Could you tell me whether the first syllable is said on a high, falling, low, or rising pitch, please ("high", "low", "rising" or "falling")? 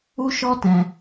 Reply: high